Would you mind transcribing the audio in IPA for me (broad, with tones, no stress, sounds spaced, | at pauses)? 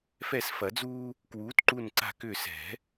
f ɛ˦˨ s f ɐ˨˩˦ d͡z uː˦ | k w uː˨˥ t ǃ u˦˨ n ǀ a̤˦˨ k ʏː˦˨ s ɛ̤˨˩˦